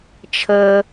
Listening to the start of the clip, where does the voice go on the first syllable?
low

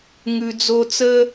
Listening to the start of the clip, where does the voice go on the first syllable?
low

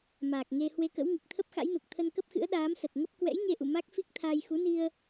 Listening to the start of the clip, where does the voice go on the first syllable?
low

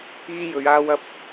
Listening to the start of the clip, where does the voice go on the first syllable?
high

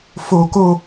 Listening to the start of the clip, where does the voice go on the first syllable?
high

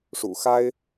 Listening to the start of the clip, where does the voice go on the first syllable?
low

